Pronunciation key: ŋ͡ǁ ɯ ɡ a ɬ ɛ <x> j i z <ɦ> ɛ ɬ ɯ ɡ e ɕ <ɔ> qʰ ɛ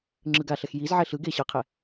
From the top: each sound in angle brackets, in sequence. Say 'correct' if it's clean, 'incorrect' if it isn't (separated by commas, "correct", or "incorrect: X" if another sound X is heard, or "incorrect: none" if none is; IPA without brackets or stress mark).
correct, incorrect: ʕ, incorrect: ɤ